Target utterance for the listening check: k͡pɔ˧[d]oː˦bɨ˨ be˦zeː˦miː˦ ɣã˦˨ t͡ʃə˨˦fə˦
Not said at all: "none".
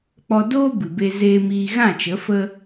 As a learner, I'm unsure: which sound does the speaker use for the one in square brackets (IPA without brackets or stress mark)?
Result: d